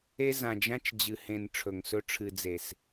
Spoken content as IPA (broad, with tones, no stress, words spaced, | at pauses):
e˦ zã˨d͡ʒã˦t͡ʃd͡ʑɨ˨hẽ˨n ʈ͡ʂʰɵ˨ŋsɵ˦ ʈ͡ʂʰɨ˨d͡ze˨s